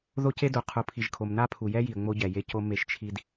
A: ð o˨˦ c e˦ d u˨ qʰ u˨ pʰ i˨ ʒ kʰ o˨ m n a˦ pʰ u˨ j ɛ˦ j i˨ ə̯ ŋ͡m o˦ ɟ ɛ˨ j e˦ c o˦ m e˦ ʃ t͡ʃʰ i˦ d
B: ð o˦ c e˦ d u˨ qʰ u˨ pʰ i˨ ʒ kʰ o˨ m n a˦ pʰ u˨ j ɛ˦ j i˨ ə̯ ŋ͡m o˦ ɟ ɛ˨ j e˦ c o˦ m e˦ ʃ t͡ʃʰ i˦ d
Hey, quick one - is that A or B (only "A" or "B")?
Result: B